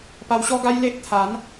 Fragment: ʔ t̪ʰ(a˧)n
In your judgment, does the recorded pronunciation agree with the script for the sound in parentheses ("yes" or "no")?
no